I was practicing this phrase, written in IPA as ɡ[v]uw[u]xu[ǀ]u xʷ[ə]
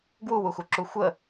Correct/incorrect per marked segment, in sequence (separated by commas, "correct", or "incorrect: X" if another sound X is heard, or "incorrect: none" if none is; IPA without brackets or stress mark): incorrect: w, correct, incorrect: ǁ, correct